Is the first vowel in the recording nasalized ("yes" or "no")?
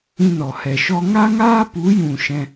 yes